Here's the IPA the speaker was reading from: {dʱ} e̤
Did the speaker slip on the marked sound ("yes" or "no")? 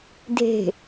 no